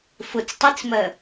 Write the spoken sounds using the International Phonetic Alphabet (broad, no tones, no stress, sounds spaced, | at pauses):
f ʊ t͡s tˤ i t͡s m ɜ